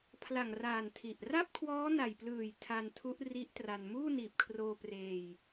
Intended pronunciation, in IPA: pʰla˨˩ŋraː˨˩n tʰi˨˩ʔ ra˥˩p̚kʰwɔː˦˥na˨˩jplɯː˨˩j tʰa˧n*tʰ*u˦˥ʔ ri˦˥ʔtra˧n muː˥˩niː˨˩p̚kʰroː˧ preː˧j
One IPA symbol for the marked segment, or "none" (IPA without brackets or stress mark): tʰ